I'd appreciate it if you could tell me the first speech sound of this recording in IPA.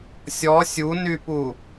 sʲ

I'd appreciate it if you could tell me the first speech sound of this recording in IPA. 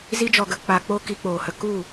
z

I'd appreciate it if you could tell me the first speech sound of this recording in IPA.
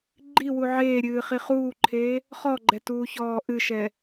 ɡ͡ǃ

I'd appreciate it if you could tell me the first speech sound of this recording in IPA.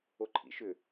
o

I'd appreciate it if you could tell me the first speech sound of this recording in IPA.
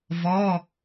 v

